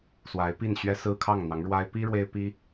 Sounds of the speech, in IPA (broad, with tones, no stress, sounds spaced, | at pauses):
s w a˧˥ ɪ̯ p i˥˩ n ɕ ɥ ɛ˥ s ɹ̩˥ kʰ ɑ˥˩ ŋ n̪ ɑ˧˥ ŋ ɻ w a˥ ɪ̯ p i˥ ɻ w e˥ ɪ̯ p i˥